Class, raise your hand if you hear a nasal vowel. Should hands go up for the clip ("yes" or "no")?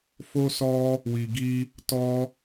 no